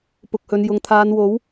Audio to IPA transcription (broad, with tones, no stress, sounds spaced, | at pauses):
p ʊ˨ k̚ h ɵ˨˧ n j ʊ˨ ŋ t̪ʰ aː˨˧ n w o˨˥ w